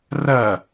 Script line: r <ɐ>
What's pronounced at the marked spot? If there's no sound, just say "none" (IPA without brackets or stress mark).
ɐ